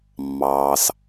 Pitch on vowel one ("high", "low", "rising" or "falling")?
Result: low